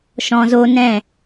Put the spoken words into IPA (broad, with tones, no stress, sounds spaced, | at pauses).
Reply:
ʃ ɔ̃˨ z o˧ n ɛ̃˦˨